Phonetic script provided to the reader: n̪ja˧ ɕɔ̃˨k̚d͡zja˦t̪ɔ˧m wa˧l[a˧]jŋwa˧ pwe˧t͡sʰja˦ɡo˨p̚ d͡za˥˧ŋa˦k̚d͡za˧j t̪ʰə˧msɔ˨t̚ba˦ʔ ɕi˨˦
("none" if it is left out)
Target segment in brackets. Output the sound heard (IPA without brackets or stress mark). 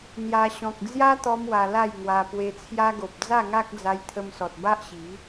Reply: a˥˧